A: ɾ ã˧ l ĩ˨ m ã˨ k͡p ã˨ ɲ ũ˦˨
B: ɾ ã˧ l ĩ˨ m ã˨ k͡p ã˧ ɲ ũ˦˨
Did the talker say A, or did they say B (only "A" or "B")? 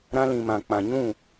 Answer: A